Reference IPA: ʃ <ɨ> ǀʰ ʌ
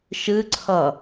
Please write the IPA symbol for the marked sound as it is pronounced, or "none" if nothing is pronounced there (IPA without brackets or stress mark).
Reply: ɨ